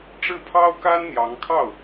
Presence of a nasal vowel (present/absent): absent